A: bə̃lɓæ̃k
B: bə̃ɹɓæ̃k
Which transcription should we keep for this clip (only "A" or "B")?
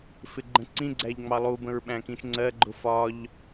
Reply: B